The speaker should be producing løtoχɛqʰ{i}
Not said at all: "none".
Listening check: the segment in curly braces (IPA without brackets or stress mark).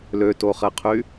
y